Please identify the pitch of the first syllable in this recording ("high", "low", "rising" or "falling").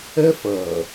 high